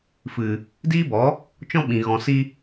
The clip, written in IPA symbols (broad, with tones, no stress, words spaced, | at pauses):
fɨ˨ | diː˦bɔ˨˦ | t͡ʃɔ̃˦ɓĩ˨ ɣɔ̃˨si˧